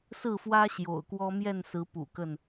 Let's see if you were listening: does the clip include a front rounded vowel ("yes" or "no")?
no